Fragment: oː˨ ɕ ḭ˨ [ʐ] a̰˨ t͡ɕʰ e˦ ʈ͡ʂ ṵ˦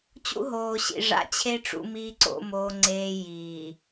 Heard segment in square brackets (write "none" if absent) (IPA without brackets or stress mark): ʐ